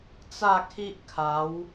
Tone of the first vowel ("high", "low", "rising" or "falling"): falling